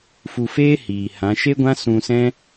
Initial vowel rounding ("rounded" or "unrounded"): rounded